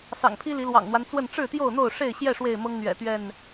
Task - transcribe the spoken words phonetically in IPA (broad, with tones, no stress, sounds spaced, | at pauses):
s ɑ̰˨˩ ŋ pʰ i˦ l i˨˦ l w ɑ̰˨˩ ŋ n̪ w a˦ n t͡s w ə˥˨ n ʈ͡ʂ ɻ̩˥˨ t̪ j o˥˨ ʊ̯ n̪ o˥˨ ʊ̯ ʂ e˥˨ ɪ̯ ɕ j ɛ˥˨ ʂ w e˥˨ ɪ̯ m ɤ˦ ŋ n̪ ɥ ɛ̰˨˩ t̪ ɥ ɛ˥˨ n